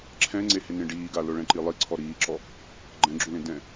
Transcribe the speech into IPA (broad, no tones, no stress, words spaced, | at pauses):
ǁʰɛ̃ŋ͡ǀehɪ nẽɖiːɡa lʊɭɛ̃ǃilˠi ǀʰɔɾiːǁɔ | ɡ͡ǃɛ̃ɡ͡ǁulẽ dɛ̃